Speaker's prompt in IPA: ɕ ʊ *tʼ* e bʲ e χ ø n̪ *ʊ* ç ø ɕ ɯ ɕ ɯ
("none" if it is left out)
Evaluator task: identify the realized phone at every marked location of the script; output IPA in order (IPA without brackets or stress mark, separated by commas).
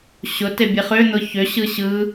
t, ʊ